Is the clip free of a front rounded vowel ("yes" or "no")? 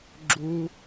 yes